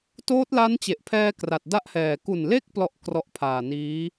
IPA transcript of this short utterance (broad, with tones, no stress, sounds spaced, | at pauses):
t oː˦˥ t̚ l a˦˥ n t͡ɕ e˨˩ ʔ pʰ ɛː˧ k r a˨˩ t̚ d a˥˩ ʔ h ɛː˨˩ k u˨˩ n l e˦˥ k̚ p l ɔ˥˩ ʔ k r ɔ˦˥ ʔ pʰ aː˨˩ n iː˦˥